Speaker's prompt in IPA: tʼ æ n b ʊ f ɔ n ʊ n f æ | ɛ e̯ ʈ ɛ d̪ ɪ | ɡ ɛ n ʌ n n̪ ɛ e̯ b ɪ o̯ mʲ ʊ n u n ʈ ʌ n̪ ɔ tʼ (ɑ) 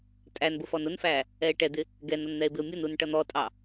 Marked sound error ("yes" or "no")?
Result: no